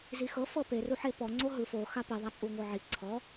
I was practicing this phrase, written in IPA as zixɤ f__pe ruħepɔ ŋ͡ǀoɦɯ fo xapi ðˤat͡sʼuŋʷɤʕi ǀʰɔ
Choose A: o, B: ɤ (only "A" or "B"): B